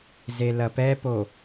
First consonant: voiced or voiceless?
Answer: voiced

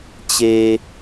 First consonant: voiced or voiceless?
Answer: voiceless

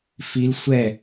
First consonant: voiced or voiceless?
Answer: voiceless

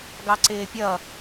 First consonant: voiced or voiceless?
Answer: voiced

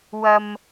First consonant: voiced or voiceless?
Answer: voiced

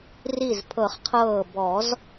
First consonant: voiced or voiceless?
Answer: voiced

